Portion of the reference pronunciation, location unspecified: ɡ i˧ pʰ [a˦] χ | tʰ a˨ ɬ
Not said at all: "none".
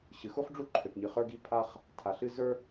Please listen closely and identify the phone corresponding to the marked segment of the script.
a˧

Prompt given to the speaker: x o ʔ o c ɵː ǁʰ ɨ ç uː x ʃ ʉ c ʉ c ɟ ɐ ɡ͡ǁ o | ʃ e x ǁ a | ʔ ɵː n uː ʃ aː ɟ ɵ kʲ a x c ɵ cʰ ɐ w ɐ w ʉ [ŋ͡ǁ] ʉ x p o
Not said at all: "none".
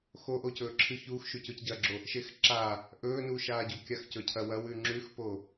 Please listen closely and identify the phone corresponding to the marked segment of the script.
ŋ͡ǁ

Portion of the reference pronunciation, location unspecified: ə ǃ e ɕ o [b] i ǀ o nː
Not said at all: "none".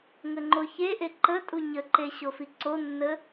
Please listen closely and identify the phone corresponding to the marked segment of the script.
f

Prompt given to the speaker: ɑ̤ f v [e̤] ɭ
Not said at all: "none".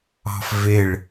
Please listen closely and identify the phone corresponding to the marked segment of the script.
e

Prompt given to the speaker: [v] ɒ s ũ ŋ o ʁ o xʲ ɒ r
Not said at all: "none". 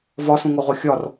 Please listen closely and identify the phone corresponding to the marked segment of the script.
v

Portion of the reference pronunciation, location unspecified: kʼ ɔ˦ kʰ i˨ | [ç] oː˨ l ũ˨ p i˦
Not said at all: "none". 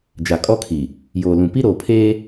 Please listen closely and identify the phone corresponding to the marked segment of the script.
j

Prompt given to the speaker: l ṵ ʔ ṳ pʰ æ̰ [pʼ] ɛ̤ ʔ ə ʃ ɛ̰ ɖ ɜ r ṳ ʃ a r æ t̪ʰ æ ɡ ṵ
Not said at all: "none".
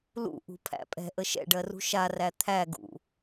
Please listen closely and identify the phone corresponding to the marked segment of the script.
pʼ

